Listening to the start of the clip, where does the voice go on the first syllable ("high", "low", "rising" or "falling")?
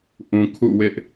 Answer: low